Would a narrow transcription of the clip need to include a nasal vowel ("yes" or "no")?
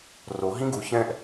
yes